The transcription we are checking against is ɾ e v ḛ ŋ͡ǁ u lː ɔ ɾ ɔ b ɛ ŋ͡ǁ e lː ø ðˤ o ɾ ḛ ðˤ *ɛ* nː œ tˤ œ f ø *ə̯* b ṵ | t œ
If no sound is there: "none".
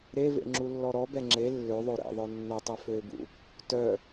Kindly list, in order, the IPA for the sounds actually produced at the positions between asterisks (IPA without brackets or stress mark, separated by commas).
œ, ɪ̯